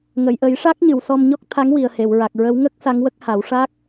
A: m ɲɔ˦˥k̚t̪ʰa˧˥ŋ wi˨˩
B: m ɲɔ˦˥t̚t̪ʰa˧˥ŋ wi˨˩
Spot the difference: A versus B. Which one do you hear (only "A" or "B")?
A